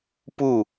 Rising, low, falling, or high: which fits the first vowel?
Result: falling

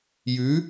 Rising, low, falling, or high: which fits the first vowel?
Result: rising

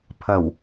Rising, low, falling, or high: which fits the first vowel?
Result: low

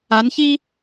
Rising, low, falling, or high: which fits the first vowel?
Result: rising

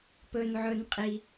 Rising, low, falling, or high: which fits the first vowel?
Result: low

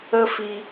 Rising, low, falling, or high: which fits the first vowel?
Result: high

